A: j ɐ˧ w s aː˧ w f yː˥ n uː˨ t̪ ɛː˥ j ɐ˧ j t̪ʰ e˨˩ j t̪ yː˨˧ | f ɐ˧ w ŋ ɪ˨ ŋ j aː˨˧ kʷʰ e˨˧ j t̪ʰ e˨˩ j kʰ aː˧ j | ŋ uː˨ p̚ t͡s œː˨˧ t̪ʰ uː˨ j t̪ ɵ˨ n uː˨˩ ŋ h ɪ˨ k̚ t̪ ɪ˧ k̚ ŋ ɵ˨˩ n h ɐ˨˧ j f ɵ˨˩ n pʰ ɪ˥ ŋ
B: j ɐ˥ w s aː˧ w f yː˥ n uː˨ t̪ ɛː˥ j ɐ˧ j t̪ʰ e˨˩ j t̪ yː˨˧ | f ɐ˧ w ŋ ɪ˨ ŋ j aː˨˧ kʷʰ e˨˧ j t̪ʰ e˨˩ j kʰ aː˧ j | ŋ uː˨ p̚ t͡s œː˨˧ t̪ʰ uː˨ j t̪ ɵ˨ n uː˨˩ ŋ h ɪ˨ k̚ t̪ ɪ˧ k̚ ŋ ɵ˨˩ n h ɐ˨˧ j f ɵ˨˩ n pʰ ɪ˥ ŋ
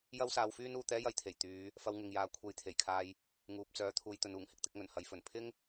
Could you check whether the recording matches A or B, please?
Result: B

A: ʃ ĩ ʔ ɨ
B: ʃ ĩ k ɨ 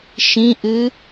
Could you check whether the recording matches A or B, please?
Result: A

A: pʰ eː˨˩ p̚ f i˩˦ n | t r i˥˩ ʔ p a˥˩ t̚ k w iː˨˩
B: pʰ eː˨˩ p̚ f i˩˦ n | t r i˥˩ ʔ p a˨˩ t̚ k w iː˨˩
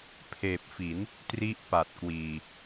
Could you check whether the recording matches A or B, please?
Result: B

